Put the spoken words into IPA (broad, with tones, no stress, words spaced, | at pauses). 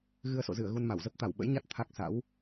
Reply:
ɣɨ˧ə̯so̰˧˨zɨ˧˩ə̯ɣu˧n ma˧˩wzə˦˥p̚ t̪a˧˩wɓə̰˧˥jɲa˦˥t̚ t̪ʰa˦˥k̚sa̰˧˥w